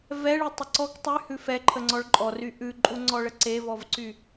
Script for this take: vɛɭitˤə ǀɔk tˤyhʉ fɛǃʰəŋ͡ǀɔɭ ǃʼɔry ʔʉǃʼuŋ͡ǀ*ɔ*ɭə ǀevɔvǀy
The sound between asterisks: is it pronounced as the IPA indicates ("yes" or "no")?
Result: yes